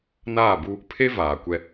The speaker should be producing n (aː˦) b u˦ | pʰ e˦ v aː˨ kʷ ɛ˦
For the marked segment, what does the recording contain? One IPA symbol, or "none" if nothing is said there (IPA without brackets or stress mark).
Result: aː˦˨